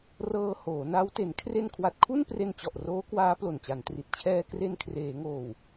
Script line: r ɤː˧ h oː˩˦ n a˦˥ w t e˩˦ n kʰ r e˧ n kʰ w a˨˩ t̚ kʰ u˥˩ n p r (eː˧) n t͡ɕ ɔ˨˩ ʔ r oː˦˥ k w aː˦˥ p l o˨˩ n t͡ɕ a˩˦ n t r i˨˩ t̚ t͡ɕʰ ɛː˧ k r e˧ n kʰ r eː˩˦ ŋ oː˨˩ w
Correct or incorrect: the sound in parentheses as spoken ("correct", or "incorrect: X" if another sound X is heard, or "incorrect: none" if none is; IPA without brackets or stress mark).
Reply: incorrect: e˧